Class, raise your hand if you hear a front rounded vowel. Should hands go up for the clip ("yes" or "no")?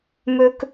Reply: yes